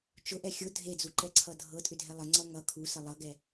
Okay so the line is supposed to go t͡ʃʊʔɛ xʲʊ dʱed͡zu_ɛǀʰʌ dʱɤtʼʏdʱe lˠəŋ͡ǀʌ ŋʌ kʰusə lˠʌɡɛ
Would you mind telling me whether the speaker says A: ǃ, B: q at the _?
A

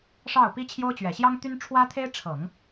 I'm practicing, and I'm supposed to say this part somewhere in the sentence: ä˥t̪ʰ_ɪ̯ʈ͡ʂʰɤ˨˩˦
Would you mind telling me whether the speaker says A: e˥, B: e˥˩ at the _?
A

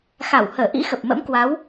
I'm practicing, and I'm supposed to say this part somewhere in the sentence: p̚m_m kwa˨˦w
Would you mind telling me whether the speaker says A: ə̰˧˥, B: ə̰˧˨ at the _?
A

